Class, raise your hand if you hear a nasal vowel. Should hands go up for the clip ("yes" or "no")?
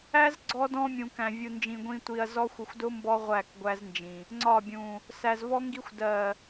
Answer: yes